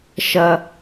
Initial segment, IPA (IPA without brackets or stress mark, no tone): ʃ